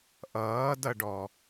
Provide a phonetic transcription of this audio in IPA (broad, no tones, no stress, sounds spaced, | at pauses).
ʔ ʌː d ʌ ɖ ɔ